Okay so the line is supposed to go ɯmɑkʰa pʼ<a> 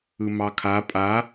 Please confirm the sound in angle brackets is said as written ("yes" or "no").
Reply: yes